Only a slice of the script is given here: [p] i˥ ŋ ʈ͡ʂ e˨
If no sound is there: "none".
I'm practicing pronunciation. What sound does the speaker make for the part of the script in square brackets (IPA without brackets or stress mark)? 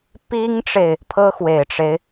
p